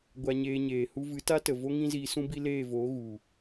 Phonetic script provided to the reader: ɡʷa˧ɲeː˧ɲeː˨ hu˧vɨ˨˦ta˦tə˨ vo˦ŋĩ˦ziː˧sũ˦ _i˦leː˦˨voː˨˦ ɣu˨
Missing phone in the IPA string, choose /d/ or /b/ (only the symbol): b